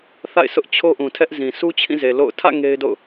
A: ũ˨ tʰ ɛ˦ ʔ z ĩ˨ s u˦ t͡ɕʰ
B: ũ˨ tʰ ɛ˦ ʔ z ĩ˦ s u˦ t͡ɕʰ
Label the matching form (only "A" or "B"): A